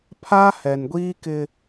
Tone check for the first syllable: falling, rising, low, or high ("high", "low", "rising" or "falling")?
high